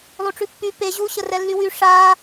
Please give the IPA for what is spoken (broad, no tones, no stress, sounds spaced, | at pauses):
lˠ u ʈ͡ʂ ʉ pː y p e ʑ u ɕ ə r ɛ lː y w y ʂ a